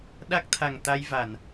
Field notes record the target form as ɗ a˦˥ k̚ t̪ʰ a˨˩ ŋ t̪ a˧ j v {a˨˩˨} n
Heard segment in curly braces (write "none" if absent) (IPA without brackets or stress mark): a˨˩˨